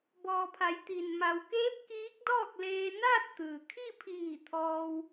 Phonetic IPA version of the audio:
bɔː˩pʰa˩˧j t̪i˩n ma˩wkeː˧˥p̚ kiː˧˥k̚dɔː˥˨k̚ leː˧naː˥˨t̚t̪ɯː˩ kʰi˥˨pʰiː˧˩ t̪ʰɔː˧w

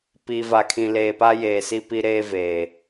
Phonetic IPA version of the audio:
pi˨va˨kʰĩ˨ leː˨pa˦jeː˨si˦ pi˦ɾeː˦veː˨

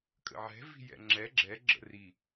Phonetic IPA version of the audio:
kʼə̰ʕɛ̤ vi̤jɛ̰ŋ͡ǁɛ ɡ͡ǁɛ ɡ͡ǁə̰ri

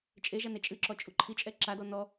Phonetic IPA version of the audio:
t͡ʃʼeʒane t͡ʃʼɨǁɔt͡ʃʼu ǃʰit͡ʃʼɛ ǁadɔ nɔ

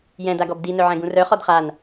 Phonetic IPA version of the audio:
jɛ̃daɡɔb di nœʕɛ̃ɡũrœ χɔdχan

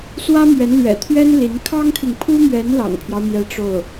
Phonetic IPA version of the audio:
swä˥mɥɛ˧˥nlɥɛ̰˨˩t̪ʰɥɛ˥n li˧˥n kʰɑ˥ŋt̪ʰi˨ŋpʰu˥mɥɛ˧˥n lɑ̰˨˩ŋpʰjɑ˦ʊ̯mjɛ˧˥ ʈ͡ʂo˥˩ʊ̯

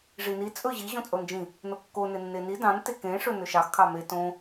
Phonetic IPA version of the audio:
ʐini t͡sʼɵʑi ʑõt͡sʼond͡ʒĩ | nokːo nenːeni dɑ̃n tekẽ ʂɵnɵʃɑx kʰɑme tõ

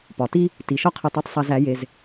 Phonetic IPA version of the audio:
pɒ˨ti˦ | ti˨ʃɒ˦qʰe˧tˤe˦tˤ sˤæ˧zæ˨˦ je˧z

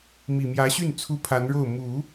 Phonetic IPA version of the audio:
mi˨˩mjä˧˥ɕy˥˩n t͡sʰu˥pʰa˧˥nɻo˥˩ʊ̯ mu˨˩˦

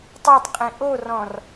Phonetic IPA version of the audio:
tˤotˤqʼĩ ʔorɔ̃r

